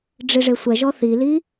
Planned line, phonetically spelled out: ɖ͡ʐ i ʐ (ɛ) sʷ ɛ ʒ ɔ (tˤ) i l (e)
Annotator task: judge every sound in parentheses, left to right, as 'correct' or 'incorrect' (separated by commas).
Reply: incorrect, incorrect, incorrect